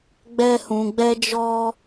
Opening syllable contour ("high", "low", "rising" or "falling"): high